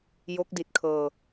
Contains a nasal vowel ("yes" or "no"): no